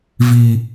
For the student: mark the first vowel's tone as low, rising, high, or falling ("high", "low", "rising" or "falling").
low